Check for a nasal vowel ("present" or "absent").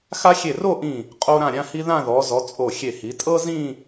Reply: present